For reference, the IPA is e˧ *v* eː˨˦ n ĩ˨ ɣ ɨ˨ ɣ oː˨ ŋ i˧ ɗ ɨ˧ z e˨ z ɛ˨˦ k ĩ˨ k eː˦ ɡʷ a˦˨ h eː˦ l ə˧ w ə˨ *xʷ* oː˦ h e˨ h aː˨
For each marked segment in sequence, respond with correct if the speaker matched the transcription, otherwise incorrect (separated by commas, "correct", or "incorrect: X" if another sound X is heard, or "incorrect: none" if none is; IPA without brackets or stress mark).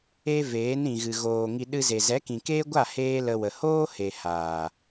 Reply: correct, incorrect: h